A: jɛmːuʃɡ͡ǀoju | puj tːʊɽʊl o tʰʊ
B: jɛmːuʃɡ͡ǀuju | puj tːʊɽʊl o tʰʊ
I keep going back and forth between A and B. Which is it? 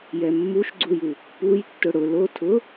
B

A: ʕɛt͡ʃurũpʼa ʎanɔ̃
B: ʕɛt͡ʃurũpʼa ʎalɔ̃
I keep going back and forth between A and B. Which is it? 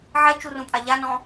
A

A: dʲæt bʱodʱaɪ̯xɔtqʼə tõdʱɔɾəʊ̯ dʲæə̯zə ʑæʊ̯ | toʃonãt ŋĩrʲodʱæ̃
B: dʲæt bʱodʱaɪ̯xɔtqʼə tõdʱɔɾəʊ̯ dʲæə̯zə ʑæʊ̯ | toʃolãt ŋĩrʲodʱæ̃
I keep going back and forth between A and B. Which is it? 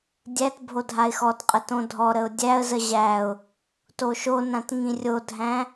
A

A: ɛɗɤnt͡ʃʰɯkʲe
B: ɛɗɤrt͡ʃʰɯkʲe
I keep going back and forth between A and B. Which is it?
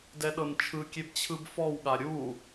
A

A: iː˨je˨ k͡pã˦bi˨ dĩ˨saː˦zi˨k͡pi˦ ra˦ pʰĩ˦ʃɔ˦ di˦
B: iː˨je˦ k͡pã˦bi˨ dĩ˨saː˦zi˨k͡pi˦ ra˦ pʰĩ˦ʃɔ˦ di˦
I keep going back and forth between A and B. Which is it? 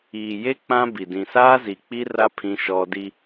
B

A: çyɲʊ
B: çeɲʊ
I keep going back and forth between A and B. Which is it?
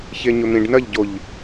B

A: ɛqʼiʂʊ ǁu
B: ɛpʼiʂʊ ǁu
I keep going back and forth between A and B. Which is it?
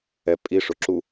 B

